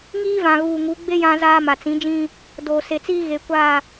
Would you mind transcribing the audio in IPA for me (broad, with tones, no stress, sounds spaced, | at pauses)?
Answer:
ŋ iː˦ v ã˨ ɣ uː˨ ŋ u˨˦ ɡ͡b e˦ j ã˦ z aː˦ m a˨ t͡s ĩ˨˦ d͡ʒ ĩ˦ | d oː˨ s e˨ t͡s iː˦ ɣ e˨ kʷ a˦˨